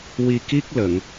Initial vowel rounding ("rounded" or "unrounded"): unrounded